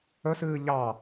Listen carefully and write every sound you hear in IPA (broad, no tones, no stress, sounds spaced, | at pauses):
ə s ɨː ʎ ɑ